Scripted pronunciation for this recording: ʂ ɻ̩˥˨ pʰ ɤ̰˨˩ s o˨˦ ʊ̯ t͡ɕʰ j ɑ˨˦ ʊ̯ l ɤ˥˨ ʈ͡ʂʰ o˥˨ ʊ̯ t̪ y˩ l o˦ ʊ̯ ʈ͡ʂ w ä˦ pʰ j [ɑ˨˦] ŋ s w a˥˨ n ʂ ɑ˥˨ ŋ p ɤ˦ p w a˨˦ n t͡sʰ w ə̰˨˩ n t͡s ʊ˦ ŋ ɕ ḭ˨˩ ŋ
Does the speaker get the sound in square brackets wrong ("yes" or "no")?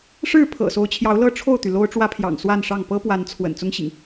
yes